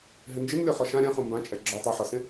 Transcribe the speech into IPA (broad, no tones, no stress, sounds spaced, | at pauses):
ɦ ɪ n d͡ʒ ɪ n lʲ ɔ χ ɔ ʃ ã ɾʲ ã χ ũ m b ã t͡ʃʼ ɛ ɡ͡ǁ ɔ tˤ o ħ ɔ s ẽ